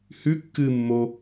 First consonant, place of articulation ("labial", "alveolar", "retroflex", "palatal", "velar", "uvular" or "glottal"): glottal